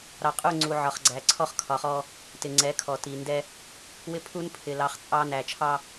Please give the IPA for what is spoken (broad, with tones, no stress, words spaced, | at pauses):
ɾɑ˨qʼu˦˨ ŋ͡ǀu˨ʕɒ˨χɡ͡ǀæ˨ǀʰɔ˦χ kʰɒ˨χɔ˦ | tɪ˨ŋ͡ǀɛ˨˦ kʰɔ˨ti˨ndɛ˦ | wɪ˦pʰu˦n pʰɪ˨lɑ˨˦χ t͡sʼɑ˦ næ˨t͡ʃʰɑ˦